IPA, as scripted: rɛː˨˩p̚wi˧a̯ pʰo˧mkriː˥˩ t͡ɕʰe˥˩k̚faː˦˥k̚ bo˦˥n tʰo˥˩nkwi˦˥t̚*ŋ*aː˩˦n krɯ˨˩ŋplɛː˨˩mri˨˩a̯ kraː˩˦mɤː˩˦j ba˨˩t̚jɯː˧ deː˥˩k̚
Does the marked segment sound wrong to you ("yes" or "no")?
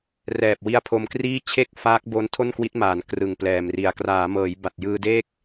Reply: yes